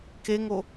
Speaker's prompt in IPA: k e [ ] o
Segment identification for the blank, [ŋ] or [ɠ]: ŋ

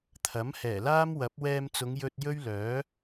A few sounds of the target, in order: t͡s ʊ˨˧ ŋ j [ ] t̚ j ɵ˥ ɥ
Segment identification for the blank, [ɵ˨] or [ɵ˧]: ɵ˧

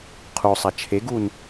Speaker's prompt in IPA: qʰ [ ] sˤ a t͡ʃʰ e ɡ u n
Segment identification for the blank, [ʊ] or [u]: u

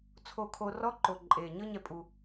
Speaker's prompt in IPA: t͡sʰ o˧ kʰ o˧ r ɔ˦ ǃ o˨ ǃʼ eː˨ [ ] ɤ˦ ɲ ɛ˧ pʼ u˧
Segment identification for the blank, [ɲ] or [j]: ɲ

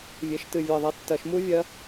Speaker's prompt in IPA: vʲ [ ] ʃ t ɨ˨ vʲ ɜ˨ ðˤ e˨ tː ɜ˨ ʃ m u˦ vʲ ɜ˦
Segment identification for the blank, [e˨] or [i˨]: e˨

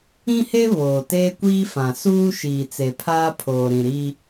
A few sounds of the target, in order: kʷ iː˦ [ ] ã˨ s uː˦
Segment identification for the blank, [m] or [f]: f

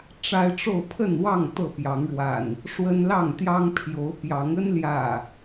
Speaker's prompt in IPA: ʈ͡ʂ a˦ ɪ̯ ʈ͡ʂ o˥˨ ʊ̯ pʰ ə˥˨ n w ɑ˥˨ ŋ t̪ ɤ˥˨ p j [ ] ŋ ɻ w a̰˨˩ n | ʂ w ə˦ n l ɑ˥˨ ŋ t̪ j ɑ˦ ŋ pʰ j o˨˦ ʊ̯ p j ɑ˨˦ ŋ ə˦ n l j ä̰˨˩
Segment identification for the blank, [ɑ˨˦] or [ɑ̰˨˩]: ɑ˨˦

